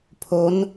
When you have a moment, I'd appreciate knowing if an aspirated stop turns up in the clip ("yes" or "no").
yes